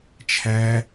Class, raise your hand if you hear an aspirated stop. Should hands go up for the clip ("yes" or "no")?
yes